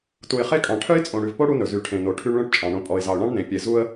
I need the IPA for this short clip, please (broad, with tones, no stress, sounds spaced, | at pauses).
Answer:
t u˨ ɪ̯ χ e˦ kʼ ɑ̃˨ ʈʰ œ˦ ɪ̯ t͡sʼ õ˨ ɽ ʉ˨ v p o˦ ɽ u˦ n ɵ˨ z y˨ ʈʰ ẽ˨ n o˨ ʈʰ y˦ ɳ ɭ œ̃˦ ʈ t͡ʃʼ ɑ̃˨ ɳ õ˨ pʼ ɔ˨ ɪ̯ z ɑ˨ ʊ̯ ɳ ɑ̃˦ ɳ n ẽ˨ pʲ e˨ z u˦ ə̯